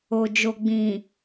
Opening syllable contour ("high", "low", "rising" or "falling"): low